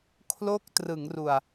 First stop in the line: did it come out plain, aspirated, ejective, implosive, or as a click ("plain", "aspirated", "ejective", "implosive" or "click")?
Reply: aspirated